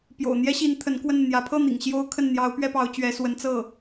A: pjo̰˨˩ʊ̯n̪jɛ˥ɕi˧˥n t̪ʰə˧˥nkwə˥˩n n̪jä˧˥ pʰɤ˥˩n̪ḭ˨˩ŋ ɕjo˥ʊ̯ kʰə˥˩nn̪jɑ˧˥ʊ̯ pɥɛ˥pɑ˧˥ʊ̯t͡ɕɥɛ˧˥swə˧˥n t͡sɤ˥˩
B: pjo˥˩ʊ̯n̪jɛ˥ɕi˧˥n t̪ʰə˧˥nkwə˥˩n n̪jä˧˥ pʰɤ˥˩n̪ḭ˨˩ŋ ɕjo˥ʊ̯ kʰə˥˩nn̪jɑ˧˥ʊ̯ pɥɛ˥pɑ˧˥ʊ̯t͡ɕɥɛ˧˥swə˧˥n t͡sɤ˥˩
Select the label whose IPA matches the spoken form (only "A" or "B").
A